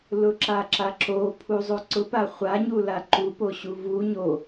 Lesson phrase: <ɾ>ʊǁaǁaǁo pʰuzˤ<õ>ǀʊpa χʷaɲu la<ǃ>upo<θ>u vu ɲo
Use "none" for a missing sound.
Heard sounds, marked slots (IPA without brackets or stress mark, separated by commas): l, o, ǃ, ɕ